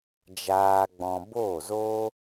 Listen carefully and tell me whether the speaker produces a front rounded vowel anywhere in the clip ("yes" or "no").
no